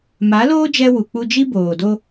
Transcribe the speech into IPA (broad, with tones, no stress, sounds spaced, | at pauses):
m a˨˦ l oː˦ d͡ʒ ɛ˦ w u˨ k͡p u˦ d͡ʒ i˦ b oː˨ d o˦